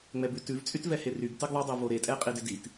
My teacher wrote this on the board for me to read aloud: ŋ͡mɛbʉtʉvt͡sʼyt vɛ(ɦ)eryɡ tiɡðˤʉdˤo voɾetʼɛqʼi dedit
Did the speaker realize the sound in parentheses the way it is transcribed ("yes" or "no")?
no